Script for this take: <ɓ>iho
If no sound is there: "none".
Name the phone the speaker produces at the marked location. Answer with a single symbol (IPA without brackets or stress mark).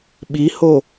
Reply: ɓ